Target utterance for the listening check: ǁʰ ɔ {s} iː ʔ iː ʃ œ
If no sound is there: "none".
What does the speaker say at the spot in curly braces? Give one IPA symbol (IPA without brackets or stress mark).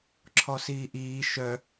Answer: s